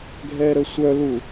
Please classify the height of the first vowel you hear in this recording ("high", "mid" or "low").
mid